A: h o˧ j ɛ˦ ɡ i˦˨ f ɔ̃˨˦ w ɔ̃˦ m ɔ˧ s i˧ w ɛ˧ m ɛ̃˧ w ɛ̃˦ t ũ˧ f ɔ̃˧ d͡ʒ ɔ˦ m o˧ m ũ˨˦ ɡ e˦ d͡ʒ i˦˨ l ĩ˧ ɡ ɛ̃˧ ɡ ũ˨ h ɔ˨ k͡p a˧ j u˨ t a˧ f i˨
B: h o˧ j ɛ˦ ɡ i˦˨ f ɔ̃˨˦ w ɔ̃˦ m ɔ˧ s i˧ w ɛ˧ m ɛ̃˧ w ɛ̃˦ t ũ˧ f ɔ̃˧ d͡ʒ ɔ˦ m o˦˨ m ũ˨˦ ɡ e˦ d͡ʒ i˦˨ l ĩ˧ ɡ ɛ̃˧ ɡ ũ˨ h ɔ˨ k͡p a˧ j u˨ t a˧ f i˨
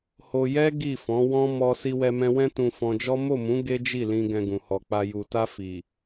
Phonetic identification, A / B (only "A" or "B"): B